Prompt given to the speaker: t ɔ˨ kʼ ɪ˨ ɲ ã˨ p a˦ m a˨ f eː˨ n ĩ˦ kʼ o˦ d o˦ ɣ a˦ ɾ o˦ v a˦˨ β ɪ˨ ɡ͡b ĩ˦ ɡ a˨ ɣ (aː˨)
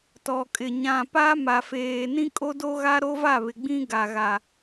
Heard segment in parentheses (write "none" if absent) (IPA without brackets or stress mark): a˨